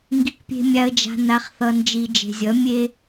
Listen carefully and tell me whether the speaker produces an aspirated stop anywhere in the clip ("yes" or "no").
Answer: no